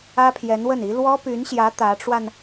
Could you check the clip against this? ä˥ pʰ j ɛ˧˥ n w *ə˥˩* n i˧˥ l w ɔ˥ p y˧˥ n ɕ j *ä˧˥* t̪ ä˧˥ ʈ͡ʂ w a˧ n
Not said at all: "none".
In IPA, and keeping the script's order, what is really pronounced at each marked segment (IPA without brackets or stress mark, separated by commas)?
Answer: ə˥˩, ä˧˥